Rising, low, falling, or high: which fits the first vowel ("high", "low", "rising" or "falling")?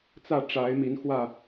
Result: falling